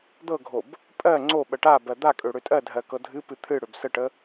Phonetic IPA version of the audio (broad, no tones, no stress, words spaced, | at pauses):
d̪ɤɡʱob | pʼɜ ŋ͡ǀo ɓɜʈabɜ d̪a kʼøɽøtʼɜdʱɜ kɤdʱɨ pɨt̪ʰɨ ɽøbsəʈə